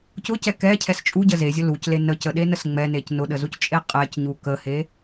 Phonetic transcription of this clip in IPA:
c ʊ c ɛ k ɛ cʰ ɛ s t͡ʃʼ u ɟ ə z e zʲ ʊ l u c l e n ə c ə ɗ e n ə s ŋ͡m ɛ n e c n ʊ ɗ ə z u c t͡ʃʼ e qʼ ɛ c ɲ u k ə h e

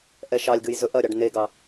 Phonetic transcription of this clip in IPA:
ʔ ɛ ʃ ɑ lʲ ɡ ɨ j z ɵ ʔ ɐ ɾʲ ɑ ɖ n e ɡ ɑ

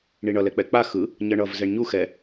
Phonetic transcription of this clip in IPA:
ɳ i ɳ ʌ l ɛ k͡p ɛ k͡p a x ɯ | ɲ ʌ ɳ ʌ v z ɛ ɳ ɲ u x ɛ

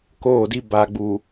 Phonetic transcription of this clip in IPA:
k oː˦˨ d i˦ b a˨ ɡ͡b u˨

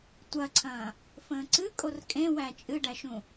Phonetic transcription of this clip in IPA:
tʷ ɐ ǀʰ ɐ̃ː | f ə̃ː ǀ ɨ kʼ o r kʼ ẽ w æ t͡ʃʼ ɨ ɖ æ ʃ ũ

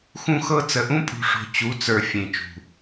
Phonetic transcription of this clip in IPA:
x ũ˦ x ɤ˦ t͡s ə˨ ʔ ũ˦ pʼ ṳ˨ ʂ o̤˨ t͡ɕ u˨˦ t͡s ə˞˨ fʲ ẽ˨ t͡ʃ ṳ˨

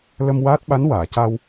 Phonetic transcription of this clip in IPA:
l ə˧ m w aː˦˥ t̚ ɓ a˧˥ n w aː˨˩˨ c a˧ w

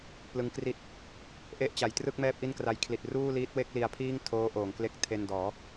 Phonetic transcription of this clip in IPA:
p l ɯ˧ ŋ k r i˥˩ t̚ | ʔ e˦˥ ʔ t͡ɕ a˩˦ j t r ɯ˥˩ k̚ m ɛː˥˩ p̚ ʔ i˥˩ n k r a˦˥ j kʰ l i˨˩ t̚ r uː˥˩ l iː˦˥ t̚ w e˥˩ k̚ l i˧ a̯ pʰ iː˥˩ ŋ tʰ oː˦˥ ʔ oː˩˦ ŋ k l e˦˥ k̚ tʰ e˧ n d ɔː˩˦

